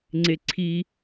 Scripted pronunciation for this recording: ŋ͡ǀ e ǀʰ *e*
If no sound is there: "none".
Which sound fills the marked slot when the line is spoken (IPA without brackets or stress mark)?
i